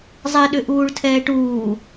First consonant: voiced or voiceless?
voiced